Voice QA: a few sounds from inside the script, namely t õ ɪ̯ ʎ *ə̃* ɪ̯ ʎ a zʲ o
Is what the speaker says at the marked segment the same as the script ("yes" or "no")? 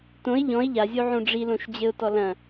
no